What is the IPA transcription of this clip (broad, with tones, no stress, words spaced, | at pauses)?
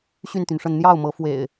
ɕy˥˨nt̪y˩nʂə˥˨n n̪jɑ˥˨ʊ̯mɤ˨˦ fwḛ˨˩ɪ̯